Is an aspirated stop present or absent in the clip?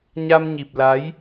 absent